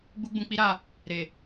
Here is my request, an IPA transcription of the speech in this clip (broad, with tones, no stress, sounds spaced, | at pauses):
ɡ͡b u˦ ɡ͡b ũ˧ k͡p i˦ ɾ a˦˨ | ɾ e˨